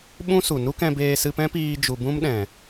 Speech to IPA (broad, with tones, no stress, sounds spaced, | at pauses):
ɓ ũ˦ s u˨ n u˦ k ɛ̃˧ b eː˧ s ɨ˧ p ɛ̃˦ p iː˧ d͡ʒ u˨ b ũ˦ m ɗ ɛ̃˨